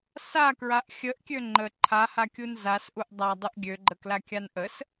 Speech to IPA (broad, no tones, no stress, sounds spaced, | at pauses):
s a k ɹ a ʔ xʲ ə ʔ kʲ ø ŋ͡ǃ ə ǃʰ a h a kʲ u n z a s ʔ u ʔ dˤ a dˤ u ʔ ɡʲ ø ɡ͡ǃ ə k l a kʲ a n ʔ ə s